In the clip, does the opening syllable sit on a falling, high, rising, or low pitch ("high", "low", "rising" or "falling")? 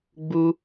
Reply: high